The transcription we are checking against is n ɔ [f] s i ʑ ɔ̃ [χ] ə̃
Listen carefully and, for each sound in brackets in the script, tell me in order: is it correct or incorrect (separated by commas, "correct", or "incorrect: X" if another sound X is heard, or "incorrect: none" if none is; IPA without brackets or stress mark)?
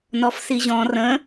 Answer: correct, incorrect: r